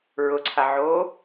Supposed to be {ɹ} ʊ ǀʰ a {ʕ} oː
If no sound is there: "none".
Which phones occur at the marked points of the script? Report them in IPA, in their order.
ɹ, ʕ

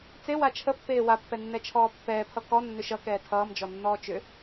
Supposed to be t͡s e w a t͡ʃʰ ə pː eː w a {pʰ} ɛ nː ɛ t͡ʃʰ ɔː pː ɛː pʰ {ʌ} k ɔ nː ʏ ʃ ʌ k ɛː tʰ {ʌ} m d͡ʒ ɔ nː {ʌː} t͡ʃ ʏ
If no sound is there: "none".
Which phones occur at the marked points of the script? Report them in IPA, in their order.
pː, ʌ, ʌː, ɔː

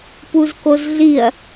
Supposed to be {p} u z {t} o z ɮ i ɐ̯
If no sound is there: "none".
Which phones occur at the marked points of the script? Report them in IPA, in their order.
p, k

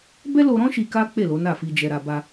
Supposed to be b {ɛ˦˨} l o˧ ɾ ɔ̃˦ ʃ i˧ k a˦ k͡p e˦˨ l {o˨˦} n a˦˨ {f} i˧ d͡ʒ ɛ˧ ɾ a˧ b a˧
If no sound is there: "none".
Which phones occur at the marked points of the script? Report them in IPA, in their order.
ɛ˦, o˨˦, f

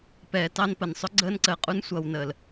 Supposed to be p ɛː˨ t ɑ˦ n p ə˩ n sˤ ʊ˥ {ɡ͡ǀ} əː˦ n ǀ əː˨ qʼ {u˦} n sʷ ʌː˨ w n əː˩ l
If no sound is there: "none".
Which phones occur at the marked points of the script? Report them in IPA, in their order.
ɡ͡ǀ, u˦

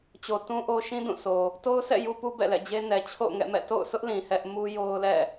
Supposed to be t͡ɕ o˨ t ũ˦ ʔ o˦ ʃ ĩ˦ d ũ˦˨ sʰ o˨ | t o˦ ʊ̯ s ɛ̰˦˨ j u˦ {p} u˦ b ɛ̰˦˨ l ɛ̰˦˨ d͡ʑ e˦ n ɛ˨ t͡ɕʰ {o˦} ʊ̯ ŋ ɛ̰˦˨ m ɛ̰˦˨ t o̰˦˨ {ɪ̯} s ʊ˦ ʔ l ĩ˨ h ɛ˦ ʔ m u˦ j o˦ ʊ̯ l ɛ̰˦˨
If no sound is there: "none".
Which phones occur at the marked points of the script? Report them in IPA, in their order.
p, o̰˦˨, ʊ̯

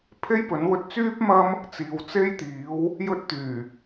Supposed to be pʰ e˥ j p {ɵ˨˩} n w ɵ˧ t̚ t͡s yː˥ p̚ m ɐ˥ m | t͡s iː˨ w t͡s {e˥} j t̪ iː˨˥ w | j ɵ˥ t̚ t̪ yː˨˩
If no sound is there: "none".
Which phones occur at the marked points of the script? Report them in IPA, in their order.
ɵ˨˥, e˥

